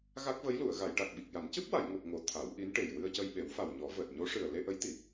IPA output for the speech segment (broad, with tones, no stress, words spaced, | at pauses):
ɣa˦˥k̚və˧˥jlu˨˩˨ə̯ ɣa˨˩˨jʈa˨˩k̚ɓi˨˩k̚ja˨˩˦n cɨ˦˥p̚wa˨˩˨j ŋo˨˩p̚ŋo˨˩˨ t̪ʰa˨˩˦wʔi˧˥nʈe˨˩j wɨ˧ə̯cə˧jɓe˨˩˦wfa˨˩w ɲɔ˨˩˦vəː˨˩t̚ ɲo˧˥ʂɨ˨˩ə̯ le˧ʔə˧˥jt̪i˨˩˦